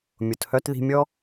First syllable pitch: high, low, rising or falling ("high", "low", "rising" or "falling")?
low